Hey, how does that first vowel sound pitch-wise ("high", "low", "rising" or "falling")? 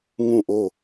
falling